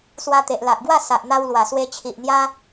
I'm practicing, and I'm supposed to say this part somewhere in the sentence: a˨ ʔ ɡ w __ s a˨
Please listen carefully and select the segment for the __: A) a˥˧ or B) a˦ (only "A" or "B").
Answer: A